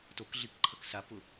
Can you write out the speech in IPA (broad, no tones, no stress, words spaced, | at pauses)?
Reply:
tokɮikǃʰɐk sapʊ